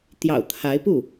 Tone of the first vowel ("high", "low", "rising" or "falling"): low